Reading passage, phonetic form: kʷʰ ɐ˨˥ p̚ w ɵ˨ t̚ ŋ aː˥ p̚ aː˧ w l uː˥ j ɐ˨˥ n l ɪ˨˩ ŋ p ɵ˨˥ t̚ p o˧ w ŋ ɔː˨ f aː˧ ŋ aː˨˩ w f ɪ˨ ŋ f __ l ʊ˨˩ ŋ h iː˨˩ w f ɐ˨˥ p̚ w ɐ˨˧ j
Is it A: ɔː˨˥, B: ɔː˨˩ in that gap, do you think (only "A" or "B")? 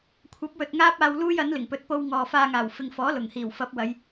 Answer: A